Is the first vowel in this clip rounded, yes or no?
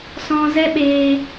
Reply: yes